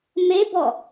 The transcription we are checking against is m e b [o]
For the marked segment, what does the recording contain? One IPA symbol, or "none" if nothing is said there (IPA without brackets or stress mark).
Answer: ɔ